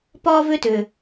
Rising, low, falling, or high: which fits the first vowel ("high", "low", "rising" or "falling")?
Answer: high